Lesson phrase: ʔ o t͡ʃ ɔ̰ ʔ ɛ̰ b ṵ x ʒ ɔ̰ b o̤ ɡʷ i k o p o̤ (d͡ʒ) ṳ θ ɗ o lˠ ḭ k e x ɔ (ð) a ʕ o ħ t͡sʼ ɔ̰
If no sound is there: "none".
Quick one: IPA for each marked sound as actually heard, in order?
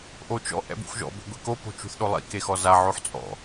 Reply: t͡ʃ, z

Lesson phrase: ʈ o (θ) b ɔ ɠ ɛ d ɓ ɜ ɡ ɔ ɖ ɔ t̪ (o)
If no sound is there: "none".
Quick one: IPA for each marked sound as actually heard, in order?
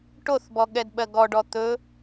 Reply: θ, ɵ

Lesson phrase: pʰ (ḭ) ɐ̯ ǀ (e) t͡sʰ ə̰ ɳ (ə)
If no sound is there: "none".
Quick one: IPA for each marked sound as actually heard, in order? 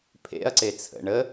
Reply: ḛ, e, ə

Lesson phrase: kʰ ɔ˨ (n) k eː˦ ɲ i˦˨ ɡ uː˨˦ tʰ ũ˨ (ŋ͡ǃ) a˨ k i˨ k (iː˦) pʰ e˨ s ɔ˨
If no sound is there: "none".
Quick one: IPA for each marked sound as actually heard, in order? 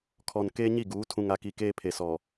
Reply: n, ŋ, eː˦

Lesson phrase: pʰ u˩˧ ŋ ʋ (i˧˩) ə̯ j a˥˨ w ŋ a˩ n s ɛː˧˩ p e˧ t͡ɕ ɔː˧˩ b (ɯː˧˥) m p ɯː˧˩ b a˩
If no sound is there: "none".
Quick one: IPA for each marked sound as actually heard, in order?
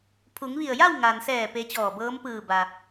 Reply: i˧˩, ɤː˧˥

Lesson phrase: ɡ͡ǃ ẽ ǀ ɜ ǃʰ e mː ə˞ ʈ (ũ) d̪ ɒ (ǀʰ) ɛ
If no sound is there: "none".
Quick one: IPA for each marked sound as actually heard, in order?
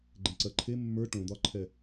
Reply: õ, ǃʰ

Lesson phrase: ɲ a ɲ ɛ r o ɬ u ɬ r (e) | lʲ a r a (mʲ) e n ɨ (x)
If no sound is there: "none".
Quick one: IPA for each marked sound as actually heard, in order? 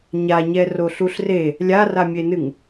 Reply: e, mʲ, ŋ

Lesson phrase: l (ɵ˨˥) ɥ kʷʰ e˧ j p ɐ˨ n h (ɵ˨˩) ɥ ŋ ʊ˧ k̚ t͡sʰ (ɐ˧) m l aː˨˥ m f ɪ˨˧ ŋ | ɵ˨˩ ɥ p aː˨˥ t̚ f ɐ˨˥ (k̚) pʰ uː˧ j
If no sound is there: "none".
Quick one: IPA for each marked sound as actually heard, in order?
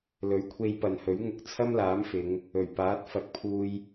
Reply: ɵ˨˥, ɵ˨˥, ɐ˥, k̚

